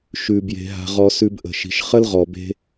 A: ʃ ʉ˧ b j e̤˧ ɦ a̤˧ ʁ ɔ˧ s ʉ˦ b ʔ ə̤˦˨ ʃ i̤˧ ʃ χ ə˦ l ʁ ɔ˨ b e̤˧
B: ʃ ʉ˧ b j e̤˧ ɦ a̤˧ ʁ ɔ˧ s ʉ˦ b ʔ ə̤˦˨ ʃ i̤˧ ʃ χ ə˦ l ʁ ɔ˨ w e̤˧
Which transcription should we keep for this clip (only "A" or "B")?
A